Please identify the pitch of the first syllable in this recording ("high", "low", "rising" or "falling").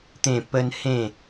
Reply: falling